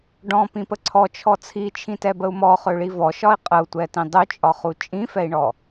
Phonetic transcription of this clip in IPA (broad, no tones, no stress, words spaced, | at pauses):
ɖɔ̃pĩpə ǀʰɔt͡ʃʰɔ t͡sʰit͡ʃʰĩtɛbəu̯ mɔχøɭi vɔʃɒi̯ qʼəu̯tʷɛtĩ dˤøt͡ʃʼɒχu t͡ʃʼĩfɛi̯ɳɔ